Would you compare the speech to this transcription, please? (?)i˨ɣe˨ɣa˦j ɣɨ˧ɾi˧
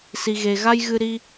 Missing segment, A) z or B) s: B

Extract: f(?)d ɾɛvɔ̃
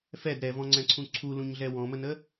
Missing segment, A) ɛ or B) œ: A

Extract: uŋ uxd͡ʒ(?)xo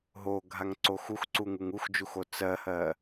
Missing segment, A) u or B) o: A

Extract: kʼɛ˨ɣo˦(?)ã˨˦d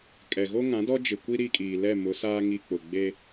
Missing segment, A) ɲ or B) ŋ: B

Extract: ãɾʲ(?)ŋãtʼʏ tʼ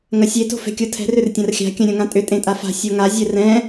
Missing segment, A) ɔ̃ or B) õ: B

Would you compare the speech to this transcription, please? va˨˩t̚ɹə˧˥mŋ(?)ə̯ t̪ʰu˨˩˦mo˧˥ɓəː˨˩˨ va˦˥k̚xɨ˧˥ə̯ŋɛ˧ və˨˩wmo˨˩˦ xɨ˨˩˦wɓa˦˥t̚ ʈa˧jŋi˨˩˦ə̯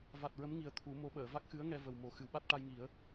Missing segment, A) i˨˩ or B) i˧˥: A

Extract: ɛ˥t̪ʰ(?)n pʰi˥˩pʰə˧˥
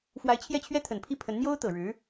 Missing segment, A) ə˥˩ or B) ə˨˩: B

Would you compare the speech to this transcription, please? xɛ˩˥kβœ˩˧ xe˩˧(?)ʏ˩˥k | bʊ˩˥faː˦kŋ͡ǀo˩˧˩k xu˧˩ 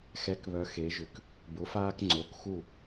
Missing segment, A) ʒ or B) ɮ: A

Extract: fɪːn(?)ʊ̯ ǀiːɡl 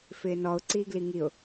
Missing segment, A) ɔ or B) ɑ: A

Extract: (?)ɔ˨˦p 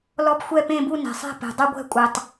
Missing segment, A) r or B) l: B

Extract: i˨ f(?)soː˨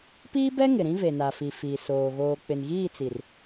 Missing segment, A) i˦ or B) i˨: B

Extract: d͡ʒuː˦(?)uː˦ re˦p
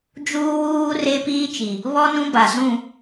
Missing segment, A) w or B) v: A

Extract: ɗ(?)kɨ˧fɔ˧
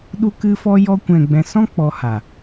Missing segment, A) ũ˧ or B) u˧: B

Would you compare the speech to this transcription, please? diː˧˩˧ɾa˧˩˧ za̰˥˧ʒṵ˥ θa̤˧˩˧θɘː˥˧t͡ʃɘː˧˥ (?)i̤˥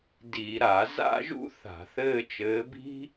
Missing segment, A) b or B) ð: A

